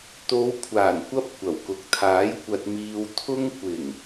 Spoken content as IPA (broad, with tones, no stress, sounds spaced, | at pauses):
t̪ o˨˧ w kʷʰ aː˨˩ n kʷ ɐ˧ p̚ kʷ ɐ˨˩ w k ʊ˨ k̚ t̪ʰ aː˨˥ j kʷ ɐ˧ t̚ m iː˧ w t̪ʰ ʊ˧ ŋ kʷ ɪ˨˩ ŋ